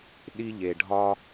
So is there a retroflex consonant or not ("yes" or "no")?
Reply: yes